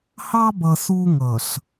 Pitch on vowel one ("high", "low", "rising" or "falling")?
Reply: high